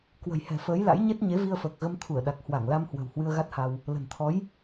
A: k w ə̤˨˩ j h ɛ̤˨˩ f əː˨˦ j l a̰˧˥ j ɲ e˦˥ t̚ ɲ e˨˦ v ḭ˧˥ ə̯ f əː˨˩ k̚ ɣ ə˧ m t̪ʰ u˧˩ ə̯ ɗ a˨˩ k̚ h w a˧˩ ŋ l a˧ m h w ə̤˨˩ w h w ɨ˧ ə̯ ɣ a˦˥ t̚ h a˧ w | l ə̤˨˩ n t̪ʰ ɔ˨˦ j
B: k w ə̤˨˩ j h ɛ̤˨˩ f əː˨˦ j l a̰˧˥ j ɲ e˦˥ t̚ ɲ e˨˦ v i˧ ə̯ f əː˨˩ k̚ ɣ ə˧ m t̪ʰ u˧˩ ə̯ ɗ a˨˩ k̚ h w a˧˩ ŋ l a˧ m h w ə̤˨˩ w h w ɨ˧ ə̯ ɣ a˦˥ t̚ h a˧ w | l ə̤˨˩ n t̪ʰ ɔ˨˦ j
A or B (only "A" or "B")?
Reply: B